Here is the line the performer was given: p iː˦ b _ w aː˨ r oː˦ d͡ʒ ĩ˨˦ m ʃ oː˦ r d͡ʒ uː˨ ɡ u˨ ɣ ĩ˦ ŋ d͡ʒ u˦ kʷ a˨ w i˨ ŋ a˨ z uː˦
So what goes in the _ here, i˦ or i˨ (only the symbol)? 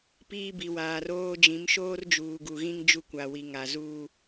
i˨